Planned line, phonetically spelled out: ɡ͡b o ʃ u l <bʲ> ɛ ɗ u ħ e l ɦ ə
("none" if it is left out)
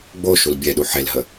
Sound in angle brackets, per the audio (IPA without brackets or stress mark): bʲ